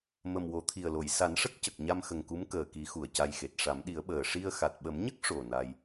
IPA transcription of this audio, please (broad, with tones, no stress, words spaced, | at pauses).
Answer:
mə˨˩mwo˨˩˦t̪ʰi˨˩ə̯lo˨˩˨j sa˨˩˦nʂə˦˥k̚cə˨˩k̚ ɲa˧mxə˨˩ŋku˧˥m kəː˨˩ki˨˩˦ xu˨˩ə̯ca˧jxe˨˩t̚ ʂa˨˩˦mɗi˨˩˦ə̯ɓəː˨˩ ʂi˧ə̯ xa˨˩t̚ɓə˨˩˦mɲə˦˥k̚ ʂo˨˩ na˧j